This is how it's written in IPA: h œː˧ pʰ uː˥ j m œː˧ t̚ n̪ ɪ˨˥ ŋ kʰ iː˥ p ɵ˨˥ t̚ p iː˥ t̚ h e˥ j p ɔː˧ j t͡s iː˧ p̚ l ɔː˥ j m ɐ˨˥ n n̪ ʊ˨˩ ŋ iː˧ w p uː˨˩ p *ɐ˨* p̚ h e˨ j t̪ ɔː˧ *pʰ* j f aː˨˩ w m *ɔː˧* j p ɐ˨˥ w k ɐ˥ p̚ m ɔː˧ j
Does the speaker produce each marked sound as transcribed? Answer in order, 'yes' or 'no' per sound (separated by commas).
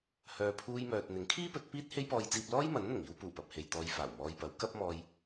yes, no, yes